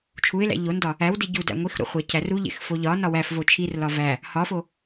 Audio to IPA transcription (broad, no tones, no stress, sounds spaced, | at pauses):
t͡ʃʰ u ɪ̯ l æ̰ ʎ o n d ɒ | æ w d i ɟ u d æ̰ ŋʷ i x ɾ o̰ χʷ æ cʰ æ r u ʎ ḛ x f o ʎ ɒ n ɒ w æ f v o t͡ʃʰ i r l ɒ v æ | h ɒ f o